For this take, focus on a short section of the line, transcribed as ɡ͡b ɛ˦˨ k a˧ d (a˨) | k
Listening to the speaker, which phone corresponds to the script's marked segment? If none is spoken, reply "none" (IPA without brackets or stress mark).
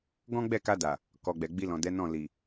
a˨